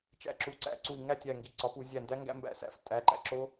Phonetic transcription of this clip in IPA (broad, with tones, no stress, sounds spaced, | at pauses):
t͡ʃ æ̰˧˩ ǁ u˩˥ ǀ æ̰˧˩ ǀ u˧˩ i̯ ŋ æ˥˩ tʲ æ˧˩ ŋ ɡ i˩˧˩ ǀ ɒ˩˥ p u˧˩˧ zʲ æ˧˩ n d æ˦˥ ŋ ɡ æ̰˦˥ m b æ̰˧˩ s æ̰˥˩ f tʼ æ˩˧˩ ǃ æ̰˧˩ ǁ o˦˥